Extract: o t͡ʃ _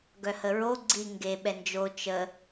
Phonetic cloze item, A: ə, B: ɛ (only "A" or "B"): A